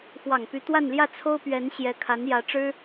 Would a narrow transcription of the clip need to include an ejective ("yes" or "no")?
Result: no